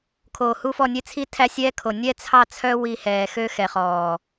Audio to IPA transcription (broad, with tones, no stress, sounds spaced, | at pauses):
kʰ oː˨ h u˦ f ɔ˦˨ nʲ e˦ t͡sʰ i˦˨ tʰ æ˦ sʲ ɛː˦ kʰ o˨ nʲ ɛ˦ t͡sʰ ɑ˦˨ t͡sʰ œ˦ w i˨ h ɛː˨ x ø˦ x ɛ˨ χ ɔː˨